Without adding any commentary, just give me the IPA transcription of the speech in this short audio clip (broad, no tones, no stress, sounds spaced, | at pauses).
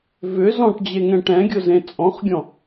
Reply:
v ʏ z ɔ̃ ʈ d͡ʑ e ŋ ɛ̃ ʈ ɛ̃ ɡʲ ʊ z ẽ t͡sʼ ɔ̃ χ ɡʲ ɔ̃